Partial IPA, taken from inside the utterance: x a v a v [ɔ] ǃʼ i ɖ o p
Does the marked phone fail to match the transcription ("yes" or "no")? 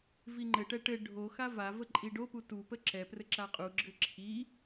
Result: yes